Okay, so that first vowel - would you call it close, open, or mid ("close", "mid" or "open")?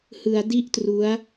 close